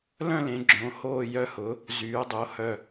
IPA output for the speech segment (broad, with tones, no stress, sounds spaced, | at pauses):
l œ̃˥˨ l ẽ˩˧ ɡ͡ǁ õ˩˧ h oː˥˨ j œ˦ h ʊ˩˥ | z yː˩˧ dˤ o˩˧ h œ˨˩